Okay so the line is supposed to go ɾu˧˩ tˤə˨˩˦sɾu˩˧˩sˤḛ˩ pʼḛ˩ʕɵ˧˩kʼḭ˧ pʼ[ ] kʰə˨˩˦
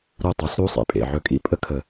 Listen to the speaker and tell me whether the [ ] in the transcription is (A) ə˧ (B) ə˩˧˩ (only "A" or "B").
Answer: A